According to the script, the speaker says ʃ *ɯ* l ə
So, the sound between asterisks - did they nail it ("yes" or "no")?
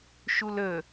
no